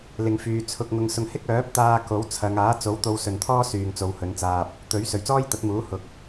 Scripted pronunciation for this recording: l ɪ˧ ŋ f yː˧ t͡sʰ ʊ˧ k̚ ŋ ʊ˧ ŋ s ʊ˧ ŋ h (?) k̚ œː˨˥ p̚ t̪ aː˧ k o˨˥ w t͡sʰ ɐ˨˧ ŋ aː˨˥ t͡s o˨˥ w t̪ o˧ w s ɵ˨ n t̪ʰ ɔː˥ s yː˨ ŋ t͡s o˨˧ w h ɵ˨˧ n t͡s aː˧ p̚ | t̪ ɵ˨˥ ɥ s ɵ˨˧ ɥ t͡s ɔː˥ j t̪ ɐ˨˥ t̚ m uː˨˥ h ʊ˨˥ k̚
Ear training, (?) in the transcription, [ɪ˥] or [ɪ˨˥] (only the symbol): ɪ˥